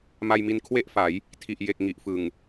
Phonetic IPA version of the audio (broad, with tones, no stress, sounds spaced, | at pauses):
m a˧ j m i˧ n kʰ w e˥˩ ʔ f a˩˦ j | tʰ i˨˩ ʔ j e˨˩ k̚ ŋ i˨˩ ʔ f ɯ˨˩ ŋ